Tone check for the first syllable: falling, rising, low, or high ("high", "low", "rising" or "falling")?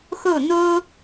falling